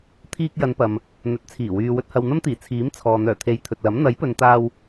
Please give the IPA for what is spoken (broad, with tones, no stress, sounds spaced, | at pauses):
t̪ʰ iː˧ k̚ j ɐ˨˧ n p ɐ˨ m | n̪ ɵ˨˥ t̚ t͡sʰ iː˨˩ w yː˨ w ɵ˧ t̚ h ɐ˨ w n̪ ɐ˥ m t̪ iː˨˩ t͡sʰ iː˨˥ m t͡sʰ ɔː˨ n̪ œː˨˩ t̪ʰ e˨˧ j t̪ʰ ɵ˨ t̚ l ɐ˨˥ m n̪ ɐ˨˥ j p ɵ˨ n t̪ aː˧ w